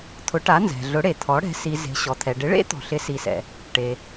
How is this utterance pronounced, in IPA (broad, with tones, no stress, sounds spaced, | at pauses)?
t̪ʰ ʊ˩˥ ʈ a˩˥ n z ɛ̤˩ ɮ ʊ˩˥ ɽ e˩ t̪ʰ ɔ˩˥ ɽ ɛ̤˩˥ s i˩ z e̤˩ ɕ ɔ˩ t̪ʰ ɛ˩ ɖ ɪ˩˥ ɭ ḛ˦˥ t̪ ɔ̤˩ ɬ ɪ˩˥ s i˩ s ɛ̰˩ | ʈ e˩